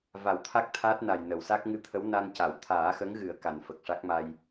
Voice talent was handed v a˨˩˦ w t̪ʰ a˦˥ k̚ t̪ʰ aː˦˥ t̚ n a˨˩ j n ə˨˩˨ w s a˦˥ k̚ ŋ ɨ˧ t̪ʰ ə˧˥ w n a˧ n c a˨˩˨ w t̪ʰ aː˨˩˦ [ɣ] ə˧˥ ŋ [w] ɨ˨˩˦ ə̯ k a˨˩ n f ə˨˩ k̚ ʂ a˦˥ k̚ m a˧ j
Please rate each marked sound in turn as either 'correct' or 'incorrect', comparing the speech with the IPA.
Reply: incorrect: x, incorrect: ɣ

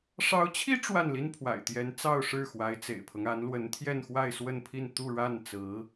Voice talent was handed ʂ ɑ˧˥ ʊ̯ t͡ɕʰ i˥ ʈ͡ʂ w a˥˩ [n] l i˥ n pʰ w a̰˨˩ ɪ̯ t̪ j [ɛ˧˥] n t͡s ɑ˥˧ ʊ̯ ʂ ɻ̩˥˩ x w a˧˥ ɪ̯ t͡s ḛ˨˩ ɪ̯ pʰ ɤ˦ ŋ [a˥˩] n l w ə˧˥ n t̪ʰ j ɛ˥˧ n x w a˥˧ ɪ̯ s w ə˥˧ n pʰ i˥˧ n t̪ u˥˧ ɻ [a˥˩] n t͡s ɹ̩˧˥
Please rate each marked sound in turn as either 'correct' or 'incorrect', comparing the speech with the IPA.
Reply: correct, correct, incorrect: a˧˥, correct

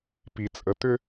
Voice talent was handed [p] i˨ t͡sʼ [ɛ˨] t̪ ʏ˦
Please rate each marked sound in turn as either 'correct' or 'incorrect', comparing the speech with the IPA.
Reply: correct, incorrect: ə˨

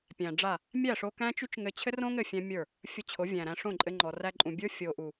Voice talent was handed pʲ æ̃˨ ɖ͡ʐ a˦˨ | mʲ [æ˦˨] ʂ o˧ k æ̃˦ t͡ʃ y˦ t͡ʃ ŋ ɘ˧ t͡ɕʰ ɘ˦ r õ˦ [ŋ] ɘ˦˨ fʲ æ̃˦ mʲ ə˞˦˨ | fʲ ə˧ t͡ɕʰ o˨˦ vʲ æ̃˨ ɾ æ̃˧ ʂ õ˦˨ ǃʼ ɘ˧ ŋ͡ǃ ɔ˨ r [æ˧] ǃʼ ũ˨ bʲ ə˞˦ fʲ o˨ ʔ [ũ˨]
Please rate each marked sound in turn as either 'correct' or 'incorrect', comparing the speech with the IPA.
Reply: correct, correct, correct, incorrect: u˨

